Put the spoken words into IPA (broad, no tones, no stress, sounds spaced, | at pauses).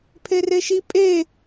pʰ e r e ʃ i pʼ e